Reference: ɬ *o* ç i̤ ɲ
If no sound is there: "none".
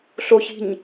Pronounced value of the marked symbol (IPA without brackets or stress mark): o